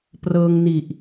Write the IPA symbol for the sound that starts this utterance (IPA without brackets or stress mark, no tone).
p